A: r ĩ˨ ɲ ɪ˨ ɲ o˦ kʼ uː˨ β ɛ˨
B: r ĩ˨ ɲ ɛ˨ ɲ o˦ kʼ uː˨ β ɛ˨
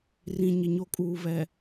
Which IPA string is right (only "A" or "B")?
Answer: A